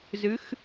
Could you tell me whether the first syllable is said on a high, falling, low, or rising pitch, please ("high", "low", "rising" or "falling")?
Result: rising